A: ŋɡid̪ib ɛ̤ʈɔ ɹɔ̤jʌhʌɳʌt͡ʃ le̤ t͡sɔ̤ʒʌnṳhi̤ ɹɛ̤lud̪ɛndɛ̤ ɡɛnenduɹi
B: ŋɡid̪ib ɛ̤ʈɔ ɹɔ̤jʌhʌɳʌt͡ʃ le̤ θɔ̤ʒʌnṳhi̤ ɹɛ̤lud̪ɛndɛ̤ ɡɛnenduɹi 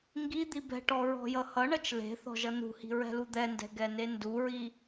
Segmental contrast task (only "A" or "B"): B